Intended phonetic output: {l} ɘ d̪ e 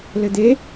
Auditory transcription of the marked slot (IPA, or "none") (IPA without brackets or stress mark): l